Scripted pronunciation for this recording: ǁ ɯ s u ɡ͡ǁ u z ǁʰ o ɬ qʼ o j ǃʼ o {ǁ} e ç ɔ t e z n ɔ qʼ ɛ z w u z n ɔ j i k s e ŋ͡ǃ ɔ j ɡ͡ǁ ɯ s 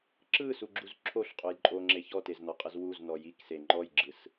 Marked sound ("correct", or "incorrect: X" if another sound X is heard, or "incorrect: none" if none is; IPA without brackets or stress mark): incorrect: ŋ͡ǁ